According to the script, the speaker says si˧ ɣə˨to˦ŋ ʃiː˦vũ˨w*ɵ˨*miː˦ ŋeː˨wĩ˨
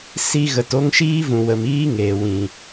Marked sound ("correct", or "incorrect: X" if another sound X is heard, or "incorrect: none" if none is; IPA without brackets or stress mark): incorrect: ə˨